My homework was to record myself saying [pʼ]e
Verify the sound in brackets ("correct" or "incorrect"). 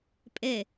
correct